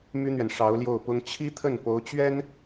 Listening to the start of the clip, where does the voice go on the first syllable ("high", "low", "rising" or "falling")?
high